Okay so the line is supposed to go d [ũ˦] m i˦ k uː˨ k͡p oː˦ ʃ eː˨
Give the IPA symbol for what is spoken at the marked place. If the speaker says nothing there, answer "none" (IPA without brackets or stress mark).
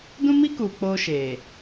ũ˦